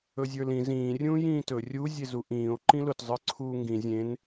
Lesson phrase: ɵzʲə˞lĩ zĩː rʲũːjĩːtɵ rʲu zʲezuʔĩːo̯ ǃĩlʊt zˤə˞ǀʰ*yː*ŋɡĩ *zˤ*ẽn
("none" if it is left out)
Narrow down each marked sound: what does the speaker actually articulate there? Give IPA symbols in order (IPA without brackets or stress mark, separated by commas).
uː, zʲ